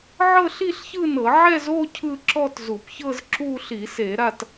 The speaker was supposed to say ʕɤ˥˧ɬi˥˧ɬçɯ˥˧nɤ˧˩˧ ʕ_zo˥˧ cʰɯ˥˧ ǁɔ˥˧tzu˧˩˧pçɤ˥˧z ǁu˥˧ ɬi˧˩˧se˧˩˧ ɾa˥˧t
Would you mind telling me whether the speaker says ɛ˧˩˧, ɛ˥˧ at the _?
ɛ˥˧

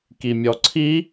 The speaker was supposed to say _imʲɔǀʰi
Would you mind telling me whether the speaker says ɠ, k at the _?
k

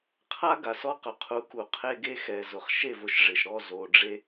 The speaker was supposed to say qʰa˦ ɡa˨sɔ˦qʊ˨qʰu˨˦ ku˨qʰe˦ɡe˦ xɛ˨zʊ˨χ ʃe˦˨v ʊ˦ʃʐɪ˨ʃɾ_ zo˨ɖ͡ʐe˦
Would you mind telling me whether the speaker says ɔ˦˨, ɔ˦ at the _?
ɔ˦˨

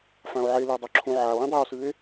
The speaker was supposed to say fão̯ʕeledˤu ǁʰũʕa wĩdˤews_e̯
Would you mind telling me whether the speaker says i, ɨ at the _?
ɨ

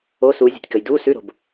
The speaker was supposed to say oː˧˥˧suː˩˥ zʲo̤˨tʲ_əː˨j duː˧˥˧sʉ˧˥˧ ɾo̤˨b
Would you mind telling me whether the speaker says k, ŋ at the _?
k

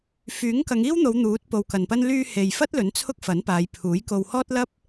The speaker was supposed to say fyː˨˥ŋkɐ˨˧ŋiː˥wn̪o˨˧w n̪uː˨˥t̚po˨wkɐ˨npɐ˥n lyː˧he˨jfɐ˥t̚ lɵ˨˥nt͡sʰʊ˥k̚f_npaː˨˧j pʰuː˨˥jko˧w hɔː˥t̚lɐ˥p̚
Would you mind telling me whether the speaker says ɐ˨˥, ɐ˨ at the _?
ɐ˨˥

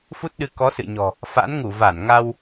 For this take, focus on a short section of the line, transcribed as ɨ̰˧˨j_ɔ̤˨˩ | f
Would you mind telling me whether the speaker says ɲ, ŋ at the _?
ɲ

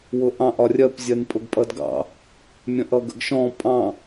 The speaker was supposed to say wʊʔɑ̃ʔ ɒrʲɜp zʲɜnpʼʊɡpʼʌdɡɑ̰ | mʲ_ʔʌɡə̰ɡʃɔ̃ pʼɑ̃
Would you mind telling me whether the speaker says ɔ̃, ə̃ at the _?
ə̃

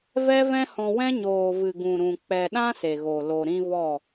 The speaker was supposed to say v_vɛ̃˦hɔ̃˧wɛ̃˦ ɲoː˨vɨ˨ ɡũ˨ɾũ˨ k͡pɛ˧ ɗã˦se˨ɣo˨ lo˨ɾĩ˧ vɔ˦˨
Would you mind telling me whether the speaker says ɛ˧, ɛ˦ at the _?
ɛ˦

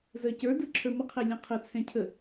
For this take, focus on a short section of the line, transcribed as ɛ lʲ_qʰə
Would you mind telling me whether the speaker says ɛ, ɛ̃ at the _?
ɛ̃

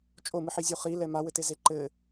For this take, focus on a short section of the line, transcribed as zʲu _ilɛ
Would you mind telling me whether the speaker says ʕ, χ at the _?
χ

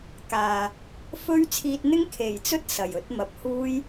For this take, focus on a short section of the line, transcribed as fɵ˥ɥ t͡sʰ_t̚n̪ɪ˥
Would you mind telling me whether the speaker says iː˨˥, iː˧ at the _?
iː˧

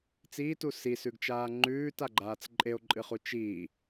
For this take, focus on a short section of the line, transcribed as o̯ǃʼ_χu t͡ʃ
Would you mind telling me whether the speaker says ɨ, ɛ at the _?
ɨ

